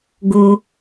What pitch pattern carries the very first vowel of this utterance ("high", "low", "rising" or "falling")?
low